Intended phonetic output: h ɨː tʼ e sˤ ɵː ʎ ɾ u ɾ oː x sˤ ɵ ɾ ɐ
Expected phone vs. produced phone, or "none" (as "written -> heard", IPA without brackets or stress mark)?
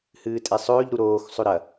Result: none